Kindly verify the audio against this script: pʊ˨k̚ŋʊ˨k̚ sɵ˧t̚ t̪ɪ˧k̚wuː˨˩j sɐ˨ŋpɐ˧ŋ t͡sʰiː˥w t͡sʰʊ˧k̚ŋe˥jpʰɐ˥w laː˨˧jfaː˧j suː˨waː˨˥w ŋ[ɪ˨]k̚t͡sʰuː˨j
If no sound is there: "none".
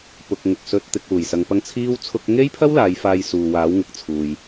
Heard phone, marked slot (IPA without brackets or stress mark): ɪ˨